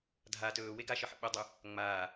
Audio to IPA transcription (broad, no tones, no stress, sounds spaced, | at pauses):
dʱ a t ɵː w e ɡ a ʃ ə ħ ə̰ ɓ ə dˤ ɵ | ŋ͡m aː